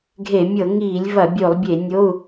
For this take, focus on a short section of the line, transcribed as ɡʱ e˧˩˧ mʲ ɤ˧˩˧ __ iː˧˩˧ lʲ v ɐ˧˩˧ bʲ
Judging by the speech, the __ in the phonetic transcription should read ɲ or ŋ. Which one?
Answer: ŋ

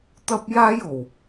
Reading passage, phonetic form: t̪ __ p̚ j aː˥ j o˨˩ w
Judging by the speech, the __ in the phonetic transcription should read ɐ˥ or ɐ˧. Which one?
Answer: ɐ˥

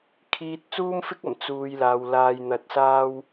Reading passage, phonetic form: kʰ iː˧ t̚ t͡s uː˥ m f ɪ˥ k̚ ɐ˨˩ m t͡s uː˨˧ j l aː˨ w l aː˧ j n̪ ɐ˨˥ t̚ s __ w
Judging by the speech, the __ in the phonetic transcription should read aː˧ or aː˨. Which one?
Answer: aː˧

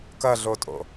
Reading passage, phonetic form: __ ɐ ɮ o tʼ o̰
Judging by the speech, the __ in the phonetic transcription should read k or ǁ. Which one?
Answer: k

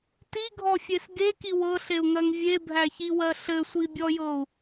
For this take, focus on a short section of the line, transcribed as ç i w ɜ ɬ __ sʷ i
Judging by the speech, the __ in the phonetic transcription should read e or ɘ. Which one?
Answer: ɘ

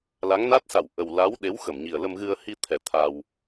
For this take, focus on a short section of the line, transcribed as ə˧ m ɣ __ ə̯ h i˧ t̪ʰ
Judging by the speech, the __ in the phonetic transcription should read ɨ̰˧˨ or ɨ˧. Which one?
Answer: ɨ˧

